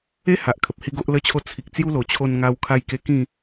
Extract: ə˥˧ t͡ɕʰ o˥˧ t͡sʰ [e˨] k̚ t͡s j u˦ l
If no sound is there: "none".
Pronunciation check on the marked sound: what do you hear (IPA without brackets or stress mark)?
i˨